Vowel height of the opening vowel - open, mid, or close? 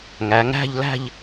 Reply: open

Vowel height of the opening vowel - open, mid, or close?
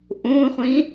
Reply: close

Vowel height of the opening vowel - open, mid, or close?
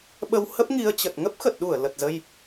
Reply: mid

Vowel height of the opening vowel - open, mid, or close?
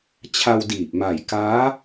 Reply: open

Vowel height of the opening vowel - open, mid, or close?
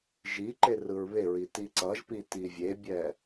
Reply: close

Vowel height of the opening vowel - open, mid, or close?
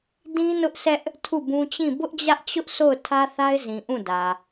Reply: close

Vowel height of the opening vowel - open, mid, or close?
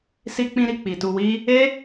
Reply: close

